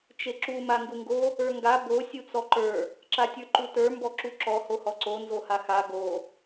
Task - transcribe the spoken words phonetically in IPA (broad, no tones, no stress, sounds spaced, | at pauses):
t͡ʃ e ǁ u m a ŋ ɡ u ŋ ɡ o | ə˞ ŋ ɡ a b o sʲ u t͡s ɔ ǃ ə˞ | ǁ a tʲ ə˞ ǃ u t ə˞ m b ɔ ǁ u ǁ ɔ h o h ɔ ǀ o n z o h a x a ɡ o